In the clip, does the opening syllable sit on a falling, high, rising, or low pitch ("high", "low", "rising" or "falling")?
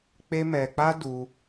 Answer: high